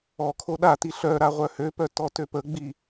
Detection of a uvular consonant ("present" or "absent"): present